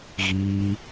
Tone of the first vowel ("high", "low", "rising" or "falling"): high